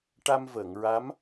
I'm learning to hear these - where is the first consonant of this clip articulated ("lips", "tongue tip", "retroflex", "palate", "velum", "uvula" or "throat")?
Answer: retroflex